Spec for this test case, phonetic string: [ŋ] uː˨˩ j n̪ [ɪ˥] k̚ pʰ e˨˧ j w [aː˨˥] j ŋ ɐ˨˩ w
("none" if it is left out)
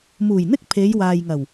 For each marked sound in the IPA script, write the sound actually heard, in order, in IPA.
m, ɪ˥, aː˨

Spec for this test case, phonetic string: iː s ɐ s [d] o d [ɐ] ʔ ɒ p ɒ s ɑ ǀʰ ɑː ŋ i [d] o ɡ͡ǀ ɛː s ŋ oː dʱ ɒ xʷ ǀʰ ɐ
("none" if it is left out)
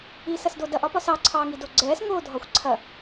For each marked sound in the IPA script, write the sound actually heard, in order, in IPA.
d, ɐ, d

